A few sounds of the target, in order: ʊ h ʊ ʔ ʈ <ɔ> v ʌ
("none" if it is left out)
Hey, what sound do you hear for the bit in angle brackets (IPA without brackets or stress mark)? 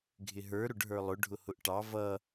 ɑ